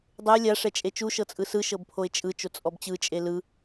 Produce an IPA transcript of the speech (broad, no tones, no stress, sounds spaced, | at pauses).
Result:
dˤ e ʊ̯ lʲ a ʂ ɛ t͡ʃʼ e t͡ʃ u ʃ ɤ t͡sʼ ɯ s ɯ ʃ ɤ b pʰ o ɪ̯ t͡ʃʼ ɯ t͡ʃ o t͡sʼ ɔ b t͡ɕ ɯ t͡ʃʼ e l ɯ